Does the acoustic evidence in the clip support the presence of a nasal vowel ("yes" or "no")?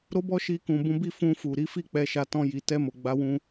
yes